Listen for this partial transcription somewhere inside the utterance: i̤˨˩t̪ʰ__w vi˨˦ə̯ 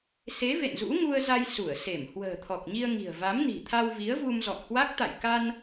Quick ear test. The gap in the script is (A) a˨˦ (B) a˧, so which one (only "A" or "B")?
B